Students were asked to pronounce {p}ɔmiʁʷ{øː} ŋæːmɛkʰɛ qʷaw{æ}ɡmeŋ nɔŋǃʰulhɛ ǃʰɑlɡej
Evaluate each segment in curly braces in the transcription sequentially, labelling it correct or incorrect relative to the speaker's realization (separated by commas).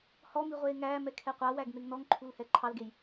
incorrect, incorrect, correct